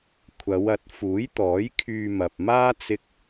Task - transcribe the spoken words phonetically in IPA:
kʷʰ ɐ˨˧ w ɐ˨˥ t̚ f uː˨˥ j t̪ ɔː˨˥ j kʰ yː˧ m ɐ˨ p̚ m aː˥ t͡s ɪ˥ k̚

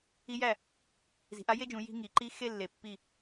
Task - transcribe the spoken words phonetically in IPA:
i˦˥ j æ˥˩ | z i̤˩˧ ʔ a˦˥ j e˥˧ d͡ʒ ũ˩˧ j i̤˥˧ ŋ i˩˧ ǃ i˦˥ x e˥˧ lː e˨˩ pː i˥˩

